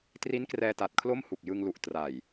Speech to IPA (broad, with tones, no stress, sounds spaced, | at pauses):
t r i˦˥ n k r ɛː˧ t a˨˩ t̚ kʰ l o˥˩ m h u˨˩ k̚ j ɯ˧ ŋ l u˨˩ ʔ t r a˨˩ j